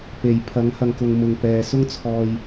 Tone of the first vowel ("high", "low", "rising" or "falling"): low